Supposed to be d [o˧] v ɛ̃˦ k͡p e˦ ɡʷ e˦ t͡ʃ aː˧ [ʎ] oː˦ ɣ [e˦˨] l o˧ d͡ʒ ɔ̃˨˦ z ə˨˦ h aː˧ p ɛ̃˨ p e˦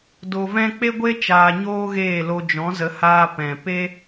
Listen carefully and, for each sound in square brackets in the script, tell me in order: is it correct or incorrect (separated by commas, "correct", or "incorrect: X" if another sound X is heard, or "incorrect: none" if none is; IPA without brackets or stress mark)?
correct, incorrect: ɲ, incorrect: eː˦˨